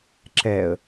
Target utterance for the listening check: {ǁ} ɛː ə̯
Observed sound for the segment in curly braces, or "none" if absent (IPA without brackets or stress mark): ǁ